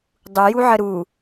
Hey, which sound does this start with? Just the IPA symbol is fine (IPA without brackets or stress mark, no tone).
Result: dˤ